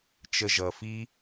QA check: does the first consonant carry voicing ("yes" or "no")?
no